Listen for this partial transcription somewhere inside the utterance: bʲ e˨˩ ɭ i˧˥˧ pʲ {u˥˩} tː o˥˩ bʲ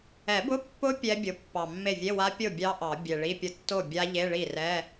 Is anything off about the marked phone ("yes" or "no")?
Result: yes